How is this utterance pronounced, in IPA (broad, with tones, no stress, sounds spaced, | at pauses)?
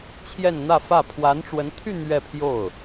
t͡ɕʰ j ɛ˥˧ n n̪ ä˥˧ f ä˥˩ pʰ w a˧˥ n ʈ͡ʂ w ə˧˥ n t̪ʰ y˥˧ n̪ ɥ ɛ˥˧ pʰ j o˥˩ ʊ̯